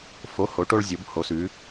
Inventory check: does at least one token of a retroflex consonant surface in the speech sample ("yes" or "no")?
yes